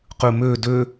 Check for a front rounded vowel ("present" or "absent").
present